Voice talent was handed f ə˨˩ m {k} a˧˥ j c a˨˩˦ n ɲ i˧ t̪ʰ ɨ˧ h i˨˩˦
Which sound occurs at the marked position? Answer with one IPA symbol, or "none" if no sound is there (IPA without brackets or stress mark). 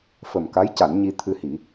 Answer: k